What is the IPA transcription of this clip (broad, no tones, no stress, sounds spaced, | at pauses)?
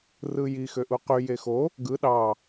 r ɯ j i x ø ʔ u q y j e x o | ɡ ɯ ɗ ɑ